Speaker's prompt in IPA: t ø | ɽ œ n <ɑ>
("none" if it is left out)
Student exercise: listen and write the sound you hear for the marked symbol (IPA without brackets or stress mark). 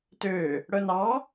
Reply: ɑ